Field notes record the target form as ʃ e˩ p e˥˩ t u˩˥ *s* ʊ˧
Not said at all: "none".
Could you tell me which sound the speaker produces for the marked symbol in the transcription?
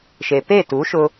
ʃ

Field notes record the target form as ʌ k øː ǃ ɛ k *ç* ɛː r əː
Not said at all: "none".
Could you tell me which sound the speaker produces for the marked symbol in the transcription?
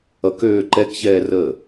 ç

